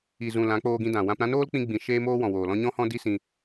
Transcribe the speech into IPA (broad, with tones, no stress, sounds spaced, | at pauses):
i˨ z ũ˨ l ã˨˦ k͡p oː˧ ɡ ĩ˧ d ã˨ w ã˧ p ɾ ã˦ n oː˦ l k͡p ĩ˧ ɡ͡b ĩ˨ ʃ eː˦ m oː˦ w ɔ̃˨ w oː˨ l ɔ̃˦ ɲ ɔ̃˦ h ɔ̃˦ d i˦ s ĩ˧